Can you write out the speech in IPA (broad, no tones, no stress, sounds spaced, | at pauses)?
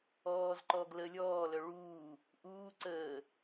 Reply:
ɔː z ǃ ɔ ɡ l ə lʲ ɔː l œ ɭ uː | ʔ uː ǀ əː